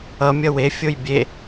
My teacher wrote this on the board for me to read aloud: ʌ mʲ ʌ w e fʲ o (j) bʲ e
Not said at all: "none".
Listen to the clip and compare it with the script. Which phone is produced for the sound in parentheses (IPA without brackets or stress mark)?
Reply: j